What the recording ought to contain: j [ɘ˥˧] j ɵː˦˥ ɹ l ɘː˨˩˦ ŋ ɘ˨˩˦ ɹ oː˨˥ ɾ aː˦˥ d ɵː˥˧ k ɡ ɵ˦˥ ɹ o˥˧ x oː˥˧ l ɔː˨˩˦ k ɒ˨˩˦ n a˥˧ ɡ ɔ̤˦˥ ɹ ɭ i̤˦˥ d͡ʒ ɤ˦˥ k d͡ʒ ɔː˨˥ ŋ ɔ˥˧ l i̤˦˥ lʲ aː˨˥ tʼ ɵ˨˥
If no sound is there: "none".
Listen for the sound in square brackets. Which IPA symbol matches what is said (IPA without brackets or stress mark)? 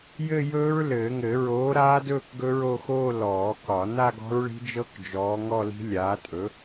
ɘ˥˧